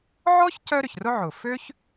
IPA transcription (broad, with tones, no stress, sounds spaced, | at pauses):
ʕ ɔ˥ ç c œ˥ ɾ ʏ˩ ç r ʊ˥ ʕ ʊ˩ f ø˥ ç